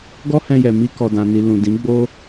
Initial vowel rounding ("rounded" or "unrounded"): rounded